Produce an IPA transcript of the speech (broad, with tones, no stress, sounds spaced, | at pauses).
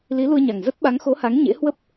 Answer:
l i˨˦ l u˧ ə̯ ɲ a˨˩ ŋ z ə˦˥ t̚ ɓ a˨˦ ŋ x o˨˦ h a˨˦ ŋ ɲ ḛ˧˥ h w ə˦˥ p̚